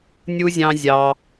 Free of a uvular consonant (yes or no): yes